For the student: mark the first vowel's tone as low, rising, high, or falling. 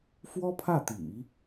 high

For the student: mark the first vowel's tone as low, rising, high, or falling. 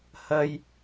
low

